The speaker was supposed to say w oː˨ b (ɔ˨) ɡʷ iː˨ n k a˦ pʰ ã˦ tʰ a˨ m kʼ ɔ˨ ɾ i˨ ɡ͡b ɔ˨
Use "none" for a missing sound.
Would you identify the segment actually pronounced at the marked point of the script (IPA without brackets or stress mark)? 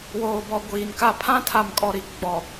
ɔ˨